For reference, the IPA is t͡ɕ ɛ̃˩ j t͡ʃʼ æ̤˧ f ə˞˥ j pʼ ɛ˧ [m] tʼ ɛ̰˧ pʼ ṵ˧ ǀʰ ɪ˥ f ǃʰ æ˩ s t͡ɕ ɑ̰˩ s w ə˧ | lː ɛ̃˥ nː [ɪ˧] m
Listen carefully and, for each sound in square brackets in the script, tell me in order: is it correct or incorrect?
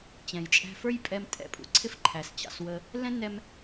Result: correct, incorrect: ɛ˧

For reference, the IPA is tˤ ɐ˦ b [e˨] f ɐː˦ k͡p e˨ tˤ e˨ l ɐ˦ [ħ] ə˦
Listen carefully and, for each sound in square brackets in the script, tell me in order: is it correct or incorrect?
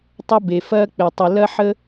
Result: correct, correct

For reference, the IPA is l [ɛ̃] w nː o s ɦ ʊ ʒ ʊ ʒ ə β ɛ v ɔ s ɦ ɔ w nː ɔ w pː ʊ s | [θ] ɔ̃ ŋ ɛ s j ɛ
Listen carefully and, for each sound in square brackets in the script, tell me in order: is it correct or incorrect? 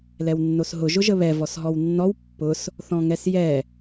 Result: incorrect: ɛ, correct

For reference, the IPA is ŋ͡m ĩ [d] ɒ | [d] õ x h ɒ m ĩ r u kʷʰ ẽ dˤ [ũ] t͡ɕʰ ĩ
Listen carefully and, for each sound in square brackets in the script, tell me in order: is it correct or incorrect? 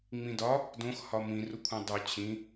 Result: correct, correct, incorrect: u

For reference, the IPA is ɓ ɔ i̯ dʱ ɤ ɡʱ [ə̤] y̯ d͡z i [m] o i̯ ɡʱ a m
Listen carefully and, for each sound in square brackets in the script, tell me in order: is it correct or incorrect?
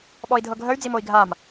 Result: incorrect: ə, correct

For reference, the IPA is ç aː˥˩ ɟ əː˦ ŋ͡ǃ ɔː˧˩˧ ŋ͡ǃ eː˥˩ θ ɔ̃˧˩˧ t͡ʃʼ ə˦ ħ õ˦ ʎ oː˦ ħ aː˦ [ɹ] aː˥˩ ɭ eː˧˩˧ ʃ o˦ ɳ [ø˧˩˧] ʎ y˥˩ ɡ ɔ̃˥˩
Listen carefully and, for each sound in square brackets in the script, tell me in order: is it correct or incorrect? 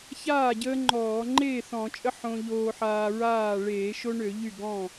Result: correct, correct

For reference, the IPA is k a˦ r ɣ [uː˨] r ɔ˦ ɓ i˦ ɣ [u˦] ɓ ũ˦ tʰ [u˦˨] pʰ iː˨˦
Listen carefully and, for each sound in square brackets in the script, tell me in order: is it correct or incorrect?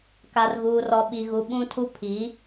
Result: incorrect: uː˦, correct, incorrect: u˦

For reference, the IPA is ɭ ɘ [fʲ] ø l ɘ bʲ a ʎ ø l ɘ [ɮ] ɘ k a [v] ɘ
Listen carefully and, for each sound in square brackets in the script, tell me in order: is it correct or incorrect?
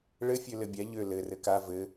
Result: correct, incorrect: r, correct

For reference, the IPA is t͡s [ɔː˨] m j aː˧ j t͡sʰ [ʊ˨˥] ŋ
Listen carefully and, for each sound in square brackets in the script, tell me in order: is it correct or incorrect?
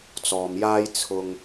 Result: correct, incorrect: ʊ˨

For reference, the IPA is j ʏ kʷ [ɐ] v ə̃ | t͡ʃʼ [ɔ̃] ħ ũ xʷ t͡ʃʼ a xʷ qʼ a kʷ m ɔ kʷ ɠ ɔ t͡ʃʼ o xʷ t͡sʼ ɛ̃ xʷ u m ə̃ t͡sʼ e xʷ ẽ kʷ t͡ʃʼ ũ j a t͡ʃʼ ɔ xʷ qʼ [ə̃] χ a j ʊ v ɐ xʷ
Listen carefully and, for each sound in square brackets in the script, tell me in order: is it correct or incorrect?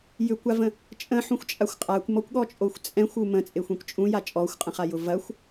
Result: incorrect: a, incorrect: ə̃, correct

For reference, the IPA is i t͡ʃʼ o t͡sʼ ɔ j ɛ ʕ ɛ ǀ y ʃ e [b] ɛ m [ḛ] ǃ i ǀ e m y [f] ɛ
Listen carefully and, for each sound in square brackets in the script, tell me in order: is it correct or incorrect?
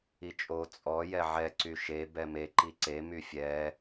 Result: correct, incorrect: e, incorrect: fʲ

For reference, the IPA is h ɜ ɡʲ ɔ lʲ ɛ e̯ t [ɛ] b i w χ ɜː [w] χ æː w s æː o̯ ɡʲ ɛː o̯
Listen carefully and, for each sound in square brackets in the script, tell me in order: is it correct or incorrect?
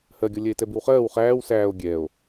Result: correct, correct

